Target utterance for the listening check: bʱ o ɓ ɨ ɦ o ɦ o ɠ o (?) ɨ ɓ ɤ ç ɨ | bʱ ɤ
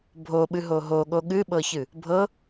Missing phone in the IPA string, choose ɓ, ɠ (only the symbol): ɠ